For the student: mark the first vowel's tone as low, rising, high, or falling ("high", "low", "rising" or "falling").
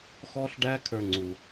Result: high